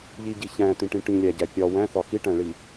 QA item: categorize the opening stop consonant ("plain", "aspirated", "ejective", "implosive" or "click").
plain